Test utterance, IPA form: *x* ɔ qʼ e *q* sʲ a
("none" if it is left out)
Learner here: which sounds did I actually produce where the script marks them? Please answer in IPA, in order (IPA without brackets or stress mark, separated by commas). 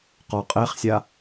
q, χ